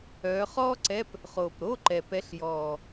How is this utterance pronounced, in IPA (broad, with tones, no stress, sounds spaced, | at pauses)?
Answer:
œː˨˦ χ ɔː˥ ǀ ɛ˧˥˧ p | χ oː˨˩ p ɾ o˧˥˧ ǃ ɛ˨˩ p ɛ˨˦ ɬ j ɔː˨˩